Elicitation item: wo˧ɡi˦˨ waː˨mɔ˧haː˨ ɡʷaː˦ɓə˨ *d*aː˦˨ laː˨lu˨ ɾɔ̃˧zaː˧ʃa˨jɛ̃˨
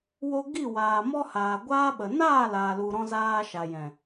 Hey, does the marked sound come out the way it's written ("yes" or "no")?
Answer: no